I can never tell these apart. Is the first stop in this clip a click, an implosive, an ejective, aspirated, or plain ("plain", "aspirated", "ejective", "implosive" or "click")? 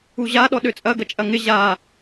implosive